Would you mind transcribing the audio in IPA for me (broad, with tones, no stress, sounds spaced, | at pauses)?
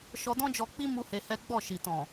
ʃ ɔ˧ d ɔ̃˦ d͡ʒ ɔ˧ k͡p i˦ m u˦ h e˧ h ɛ˦ ɡ͡b ɔ˦˨ ʃ i˨ t ɔ̃˨